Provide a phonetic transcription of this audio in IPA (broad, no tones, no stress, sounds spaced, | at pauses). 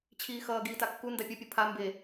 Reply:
t͡ɕʰ iː x ʌː ɡ iː t a kː u n d a pʲ ʌ pʲ u pʰ a m b e